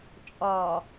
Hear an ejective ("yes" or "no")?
yes